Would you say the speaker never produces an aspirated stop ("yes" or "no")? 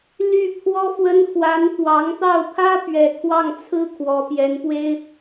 no